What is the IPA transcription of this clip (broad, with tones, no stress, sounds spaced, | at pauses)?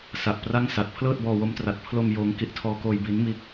s a˨˩ ʔ p r a˥˩ ŋ s a˨˩ t̚ pʰ l ɤː˥˩ t̚ b ɔː˧ w o˦˥ m t r a˨˩ t̚ pʰ l o˧ m j oː˦˥ ŋ k i˦˥ ʔ tʰ ɔː˧ k oː˧ j b i˦˥ n m iː˦˥ k̚